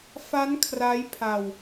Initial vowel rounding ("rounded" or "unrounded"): unrounded